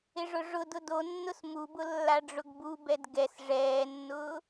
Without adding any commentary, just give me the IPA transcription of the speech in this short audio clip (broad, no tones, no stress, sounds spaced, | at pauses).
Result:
ɪ ʐ ʊ ʐ ʊ d ʊ d o nː ʊ s m u b ʊ lː a ɖ͡ʐ ʊ ɡ b u b ɛ d ɡ ɛ s ʐ ɛː nː ʊː